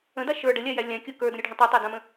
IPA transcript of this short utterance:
ə̃ d a ʃ ə˞ ɖ ə lʲ a j æ lʲ ã kʲ o k ə˞ d ə̃ ɾʲ ʉ ɖʱ ə̃ tˤ ʉ tˤ a d ã m ə̃

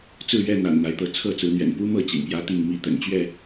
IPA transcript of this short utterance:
t͡s ɹ̩˥˨ ɥ ɛ˥˨ n̪ a̰˨˩ n n̪ a˨˦ ɪ̯ t̪ ɤ˨˦ t͡sʰ ɤ˥˨ t͡s ɹ̩˨˦ n̪ ɥ ɛ̰˨˩ n p u˦ m ɤ˥˨ t͡ɕ ḭ˨˩ ŋ p j ä˦ t̪ i˥˨ ŋ m i˥˨ t̪ ə̰˨˩ n t͡ɕ ɥ ɛ˥˨

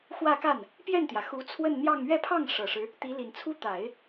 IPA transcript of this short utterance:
x w ä˥˧ k a˥˩ n | p j ɛ˥˩ n t̪ j ä˩ x u˧˥ t͡sʰ w ə˥˧ n n̪ j ɑ˥˧ ŋ ɥ ɛ˥˧ pʰ ɑ˥˩ ŋ ʂ ɤ˨˩ ʂ ɻ̩˦ | t̪ i˧˥ l i˨˩ n t͡sʰ u˥ t̪ a˨˩˦ ɪ̯

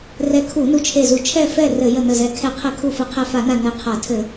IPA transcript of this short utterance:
r ɛ˧˩ kʰ u˧˩˧ n u˧˩ t͡ʃʰ e˧˩ z u˧˩˧ t͡ʃʰ ɛ˧˩ f ɛ˧˩ r ɘ˧˩˧ j ə˧˩ n ə˧˩ z ɛ˧˩ kʰ ɛ˧˩˧ qʰ ɘ˧˩˧ kʰ u˧˩ f ɘ˧˩˧ qʰ ɛ˧˩ f a˧˩˧ n a˧˩ n ɛ˧˩ qʰ a˧˩˧ tʰ ɘ˧˩˧

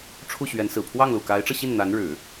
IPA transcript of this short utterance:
ʈ͡ʂʰ u˥˩ ɕ ɥ ɛ˧˥ n s ɹ̩˨˩ pʰ w ɑ˥˩ ŋ l u˨˩ k a˧˥ ɪ̯ ʈ͡ʂ ɤ˧ ɕ i˥˩ n n̪ a˧˥ n ɻ ɻ̩˨˩˦

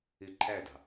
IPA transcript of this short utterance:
ɪ ǃʰ æ d ɑ̤

